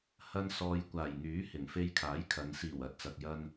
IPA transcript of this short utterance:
h ɐ˧ n s ɔː˨ j kʷ aː˨˩ j ŋ yː˨˥ h ɪ˨˩ ŋ f e˧ j kʰ aː˨˥ j kʰ ɐ˨˧ n s iː˨˩ w ɐ˨ t̚ t͡s ɐ˧ k̚ j ɐ˥ n

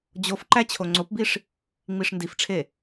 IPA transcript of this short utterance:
d͡ʑ o f ǃ æ t͡ɕʰ o ŋ͡ǀ o p b i ʂ | ŋ͡m i ʂ n d i f ʈ͡ʂʰ e

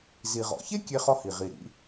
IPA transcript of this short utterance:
z i˩ ʁ ɔ̰˩ ç e˥ kʲ e˧ χ ɔ˧ h i˩ ʁ i˩ ɾ ḭ˧

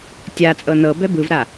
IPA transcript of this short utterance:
tʲ a t͡sʼ ɤ n ɤ b ɛ b ɯ v ɾ a

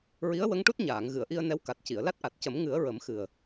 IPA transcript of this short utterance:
ɹ i˧˥ ə̯ w ə˧˥ ŋ ʈ u˦˥ t̚ ɲ aː˨˩˨ ŋ ɣ ɨ˨˩˨ ə̯ ʔ i˧ ə̯ n ɛ˧˥ w k a˨˩ t̚ c i˨˩˨ ə̯ l a˦˥ t̚ ʔ a˨˩ t̚ c ə˨˩˦ m ŋ ɨ˨˩˦ ə̯ ɹ ə˨˩˦ m x ɨ˨˩ ə̯

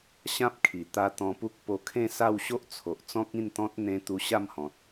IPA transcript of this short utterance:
ɕ ã˦ p̚ kʰ i˨˩ t̪ a˧ t̪ ɔ̃˧ p u˦ k̚ p o˧ kʰ ẽ˥˧ s a˥˧ w ɕ o˦ ʔ t͡sʰ o˨ ʔ t͡s ɔ̃˦ k̚ ĩ˥˧ n t̪ ɔ̃˦ t̚ n̪ ẽ˧ t̪ u˧ ɕ a˥˧ m h ɔ̃˨ t̚

